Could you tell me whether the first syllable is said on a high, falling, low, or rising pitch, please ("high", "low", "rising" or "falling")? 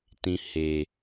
low